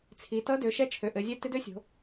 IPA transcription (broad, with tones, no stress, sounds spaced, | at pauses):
t͡sʰ i˩˧ t ʌ˧˥ d ø˩˧ ʃ ɛ˧˥ t͡ʃʰ ø˩˧ ʔ ɘ˩˧ zʲ ɛ˧˥ t ɪ˧˥ d ø˧˥ sʲ o̤˩˧